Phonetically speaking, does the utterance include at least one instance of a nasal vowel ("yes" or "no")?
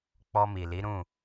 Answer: yes